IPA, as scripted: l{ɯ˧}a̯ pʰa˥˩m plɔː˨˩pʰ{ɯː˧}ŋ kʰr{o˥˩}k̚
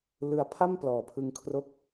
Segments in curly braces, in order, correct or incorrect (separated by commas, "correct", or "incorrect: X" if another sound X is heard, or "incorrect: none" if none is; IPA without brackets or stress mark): correct, incorrect: ɯ˧, correct